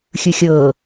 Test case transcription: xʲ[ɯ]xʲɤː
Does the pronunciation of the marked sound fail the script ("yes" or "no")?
no